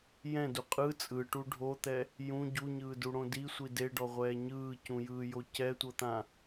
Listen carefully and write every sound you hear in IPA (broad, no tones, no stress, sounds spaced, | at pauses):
j ɛ̃ d u qʼ ɯ t͡sʼ ɯ ʈ u ɖʱ o t̪ ɛ | j ũ ɟ u ɲ ɯː d u ɽ õ d i sʷ i d e ɖ ɔ ʁʷ ɛː ɲ ɯː c ũ j ɯː j o c ɛ tʷ ɤ t̪ ã